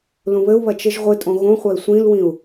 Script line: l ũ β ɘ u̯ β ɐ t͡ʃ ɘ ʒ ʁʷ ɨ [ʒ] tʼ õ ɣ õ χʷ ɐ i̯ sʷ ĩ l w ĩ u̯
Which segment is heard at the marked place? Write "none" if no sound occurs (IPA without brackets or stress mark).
none